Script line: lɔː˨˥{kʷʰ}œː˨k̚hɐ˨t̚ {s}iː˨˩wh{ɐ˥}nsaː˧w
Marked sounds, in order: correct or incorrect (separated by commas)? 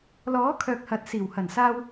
incorrect, correct, incorrect